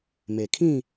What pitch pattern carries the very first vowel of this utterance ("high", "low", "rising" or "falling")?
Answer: low